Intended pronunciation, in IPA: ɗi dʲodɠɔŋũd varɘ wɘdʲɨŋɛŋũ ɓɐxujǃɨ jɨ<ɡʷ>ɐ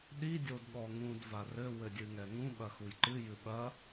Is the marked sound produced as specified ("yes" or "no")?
no